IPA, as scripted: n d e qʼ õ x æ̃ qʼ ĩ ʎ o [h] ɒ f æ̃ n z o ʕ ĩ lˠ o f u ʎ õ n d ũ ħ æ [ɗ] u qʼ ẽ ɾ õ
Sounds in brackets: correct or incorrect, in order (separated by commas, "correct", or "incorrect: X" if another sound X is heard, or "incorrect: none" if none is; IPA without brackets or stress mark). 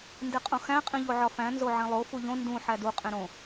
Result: incorrect: ʕ, incorrect: d